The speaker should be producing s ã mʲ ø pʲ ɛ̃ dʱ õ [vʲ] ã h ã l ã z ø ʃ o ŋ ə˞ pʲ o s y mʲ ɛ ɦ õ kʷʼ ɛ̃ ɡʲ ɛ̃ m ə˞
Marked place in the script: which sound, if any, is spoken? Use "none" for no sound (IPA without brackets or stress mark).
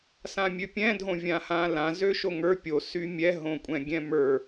vʲ